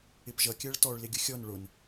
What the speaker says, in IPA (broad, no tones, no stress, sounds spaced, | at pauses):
ɪ p ʒ ʌ kʲ ɜ ɭ t ɔ ɭ l ɪ ɡʲ ʊ xʲ ɔ n ɭ ʊ n